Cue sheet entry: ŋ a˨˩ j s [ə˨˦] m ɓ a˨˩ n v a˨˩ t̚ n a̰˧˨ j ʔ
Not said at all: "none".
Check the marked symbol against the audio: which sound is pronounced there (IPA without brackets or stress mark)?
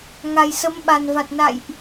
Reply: ə˨˦